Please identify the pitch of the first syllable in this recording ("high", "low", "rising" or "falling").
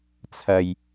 low